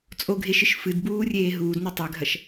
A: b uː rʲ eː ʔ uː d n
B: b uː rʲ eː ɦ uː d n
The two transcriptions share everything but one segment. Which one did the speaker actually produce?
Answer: B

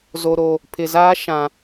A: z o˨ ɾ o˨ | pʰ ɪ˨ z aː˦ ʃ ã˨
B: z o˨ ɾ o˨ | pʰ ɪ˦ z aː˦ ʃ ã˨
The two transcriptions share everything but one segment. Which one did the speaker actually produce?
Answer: A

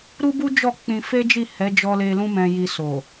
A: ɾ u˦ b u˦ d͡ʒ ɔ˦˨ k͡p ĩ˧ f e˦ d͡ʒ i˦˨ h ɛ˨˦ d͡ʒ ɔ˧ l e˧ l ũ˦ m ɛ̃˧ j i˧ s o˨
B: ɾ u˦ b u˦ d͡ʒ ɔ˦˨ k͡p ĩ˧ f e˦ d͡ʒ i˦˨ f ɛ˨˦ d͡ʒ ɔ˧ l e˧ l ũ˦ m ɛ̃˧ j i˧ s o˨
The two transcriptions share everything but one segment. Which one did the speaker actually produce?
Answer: A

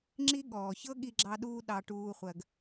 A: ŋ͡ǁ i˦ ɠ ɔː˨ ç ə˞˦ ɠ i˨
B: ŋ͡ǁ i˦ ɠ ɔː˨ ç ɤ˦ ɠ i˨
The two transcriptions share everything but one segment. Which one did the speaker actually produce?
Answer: B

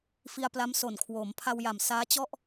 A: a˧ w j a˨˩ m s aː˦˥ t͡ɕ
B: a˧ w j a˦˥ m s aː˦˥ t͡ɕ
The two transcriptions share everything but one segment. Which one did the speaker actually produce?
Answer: A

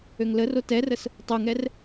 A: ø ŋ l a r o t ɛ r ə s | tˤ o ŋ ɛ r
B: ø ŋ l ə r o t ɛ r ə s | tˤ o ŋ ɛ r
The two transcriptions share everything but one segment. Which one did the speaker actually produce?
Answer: B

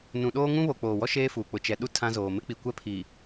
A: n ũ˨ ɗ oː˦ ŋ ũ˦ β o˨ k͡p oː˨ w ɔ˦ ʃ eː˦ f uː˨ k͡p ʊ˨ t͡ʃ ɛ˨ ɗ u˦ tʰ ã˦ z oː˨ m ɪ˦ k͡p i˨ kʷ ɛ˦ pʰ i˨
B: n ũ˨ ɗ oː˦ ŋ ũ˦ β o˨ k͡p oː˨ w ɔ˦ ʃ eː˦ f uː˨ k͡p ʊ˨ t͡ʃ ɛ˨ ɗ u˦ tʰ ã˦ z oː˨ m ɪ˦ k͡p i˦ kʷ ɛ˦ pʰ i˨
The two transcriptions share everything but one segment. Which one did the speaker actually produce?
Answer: A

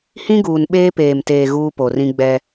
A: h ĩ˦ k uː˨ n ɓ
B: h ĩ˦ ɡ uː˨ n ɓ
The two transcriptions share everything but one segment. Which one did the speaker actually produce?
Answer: B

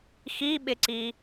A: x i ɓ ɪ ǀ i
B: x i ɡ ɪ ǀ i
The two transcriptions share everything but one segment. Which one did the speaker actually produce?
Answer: A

